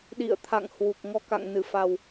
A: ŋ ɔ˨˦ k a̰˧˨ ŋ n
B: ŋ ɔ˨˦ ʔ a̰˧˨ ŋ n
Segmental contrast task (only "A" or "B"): A